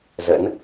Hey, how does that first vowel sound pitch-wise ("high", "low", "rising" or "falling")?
rising